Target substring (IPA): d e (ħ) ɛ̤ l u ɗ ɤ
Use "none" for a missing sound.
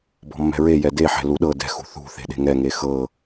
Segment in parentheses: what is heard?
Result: ħ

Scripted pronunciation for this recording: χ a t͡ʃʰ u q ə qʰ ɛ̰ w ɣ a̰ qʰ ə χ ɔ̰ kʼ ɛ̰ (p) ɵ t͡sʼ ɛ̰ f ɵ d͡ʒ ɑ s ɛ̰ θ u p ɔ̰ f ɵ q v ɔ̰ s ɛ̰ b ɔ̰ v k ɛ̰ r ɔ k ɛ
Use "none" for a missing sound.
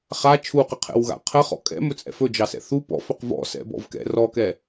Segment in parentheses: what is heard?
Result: m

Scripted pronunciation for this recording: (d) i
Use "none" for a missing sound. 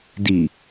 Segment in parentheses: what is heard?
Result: d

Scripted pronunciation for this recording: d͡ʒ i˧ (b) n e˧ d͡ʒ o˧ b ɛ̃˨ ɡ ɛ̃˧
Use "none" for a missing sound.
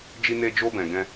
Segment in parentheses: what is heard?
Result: none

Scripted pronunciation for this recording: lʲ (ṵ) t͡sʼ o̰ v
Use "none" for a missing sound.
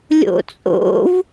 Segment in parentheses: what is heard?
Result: o̰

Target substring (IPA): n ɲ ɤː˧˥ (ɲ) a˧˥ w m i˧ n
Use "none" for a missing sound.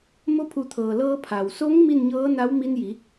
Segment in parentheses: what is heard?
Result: n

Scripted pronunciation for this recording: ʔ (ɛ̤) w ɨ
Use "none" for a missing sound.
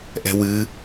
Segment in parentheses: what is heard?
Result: ɛ̤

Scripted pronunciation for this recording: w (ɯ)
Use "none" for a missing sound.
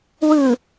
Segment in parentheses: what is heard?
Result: ɯ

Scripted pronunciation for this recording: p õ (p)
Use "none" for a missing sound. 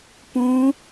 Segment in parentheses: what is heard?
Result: none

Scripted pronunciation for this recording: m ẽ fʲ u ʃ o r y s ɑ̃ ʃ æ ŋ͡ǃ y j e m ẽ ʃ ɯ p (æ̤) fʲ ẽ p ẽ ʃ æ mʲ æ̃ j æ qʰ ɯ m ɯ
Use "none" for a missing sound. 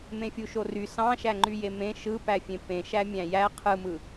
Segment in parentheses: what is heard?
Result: æ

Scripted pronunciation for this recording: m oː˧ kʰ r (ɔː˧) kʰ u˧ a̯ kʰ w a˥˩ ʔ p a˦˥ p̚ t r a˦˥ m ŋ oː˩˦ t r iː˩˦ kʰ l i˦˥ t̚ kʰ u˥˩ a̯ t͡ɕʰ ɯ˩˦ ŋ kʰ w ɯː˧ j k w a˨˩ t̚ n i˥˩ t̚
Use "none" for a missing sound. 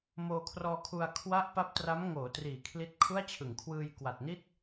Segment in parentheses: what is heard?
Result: ɔː˧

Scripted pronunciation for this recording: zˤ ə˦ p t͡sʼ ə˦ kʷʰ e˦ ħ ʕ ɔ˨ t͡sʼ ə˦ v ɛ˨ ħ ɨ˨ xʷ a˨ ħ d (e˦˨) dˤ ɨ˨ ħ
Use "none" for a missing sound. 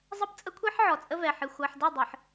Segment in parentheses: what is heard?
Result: e˦˨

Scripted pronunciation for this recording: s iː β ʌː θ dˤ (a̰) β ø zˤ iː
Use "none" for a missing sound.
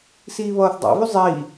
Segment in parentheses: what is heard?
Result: a̰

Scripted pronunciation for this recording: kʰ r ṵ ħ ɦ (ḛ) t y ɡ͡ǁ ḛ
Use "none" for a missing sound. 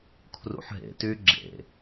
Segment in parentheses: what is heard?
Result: ḛ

